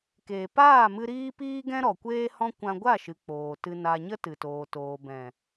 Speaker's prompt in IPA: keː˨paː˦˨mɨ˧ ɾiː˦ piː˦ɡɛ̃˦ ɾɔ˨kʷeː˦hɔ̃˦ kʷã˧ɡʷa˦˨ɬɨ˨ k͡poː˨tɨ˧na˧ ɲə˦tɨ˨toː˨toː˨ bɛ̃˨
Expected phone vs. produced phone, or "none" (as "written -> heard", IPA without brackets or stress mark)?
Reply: ɬ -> ʃ